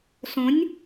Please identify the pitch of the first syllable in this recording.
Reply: rising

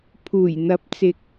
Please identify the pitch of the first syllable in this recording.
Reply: low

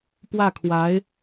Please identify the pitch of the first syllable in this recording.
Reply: falling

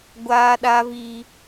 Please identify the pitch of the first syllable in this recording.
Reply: high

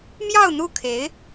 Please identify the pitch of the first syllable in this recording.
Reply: falling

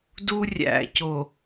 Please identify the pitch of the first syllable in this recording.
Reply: high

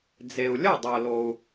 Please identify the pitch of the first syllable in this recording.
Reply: low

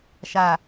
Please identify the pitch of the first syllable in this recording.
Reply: low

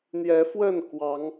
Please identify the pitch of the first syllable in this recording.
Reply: rising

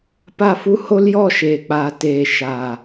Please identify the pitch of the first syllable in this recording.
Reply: falling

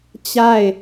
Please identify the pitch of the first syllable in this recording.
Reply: falling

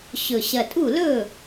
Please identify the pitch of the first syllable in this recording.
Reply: low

